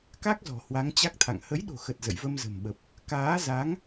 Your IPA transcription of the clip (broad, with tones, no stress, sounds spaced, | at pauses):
k a˦˥ k̚ z ɔ̤˨˩ h w a˨˦ ŋ t͡ɕ a˦˥ k̚ t̪ʰ a̰˧˨ ŋ h ə˨˦ j ɗ o̤˨˩ x ə˨˩ t̚ z ə̰˧˨ j v ə˧ m z ə̤˨˩ m ɓ ə˨˩ p̚ | k aː˨˦ z a˨˦ ŋ